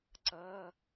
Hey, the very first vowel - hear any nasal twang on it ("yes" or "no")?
no